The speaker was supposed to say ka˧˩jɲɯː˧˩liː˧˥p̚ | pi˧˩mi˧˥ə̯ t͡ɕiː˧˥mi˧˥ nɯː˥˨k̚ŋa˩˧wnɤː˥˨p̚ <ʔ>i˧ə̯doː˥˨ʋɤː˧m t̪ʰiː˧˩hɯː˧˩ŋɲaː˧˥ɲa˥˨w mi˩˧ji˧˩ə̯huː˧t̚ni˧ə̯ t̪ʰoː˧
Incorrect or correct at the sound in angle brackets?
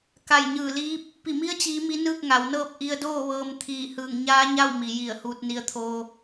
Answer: correct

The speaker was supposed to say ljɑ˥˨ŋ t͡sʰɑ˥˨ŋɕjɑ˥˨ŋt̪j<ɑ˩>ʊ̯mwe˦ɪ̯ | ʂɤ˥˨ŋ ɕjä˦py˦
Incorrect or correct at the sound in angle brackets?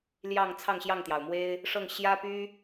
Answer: correct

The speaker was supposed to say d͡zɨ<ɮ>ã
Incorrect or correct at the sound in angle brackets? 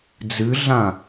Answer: correct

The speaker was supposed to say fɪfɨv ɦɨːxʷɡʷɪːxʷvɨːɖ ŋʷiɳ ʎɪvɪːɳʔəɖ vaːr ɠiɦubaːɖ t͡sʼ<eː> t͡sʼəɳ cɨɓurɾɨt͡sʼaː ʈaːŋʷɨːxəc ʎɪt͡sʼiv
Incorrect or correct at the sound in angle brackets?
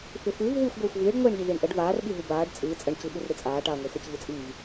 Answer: incorrect: ɨː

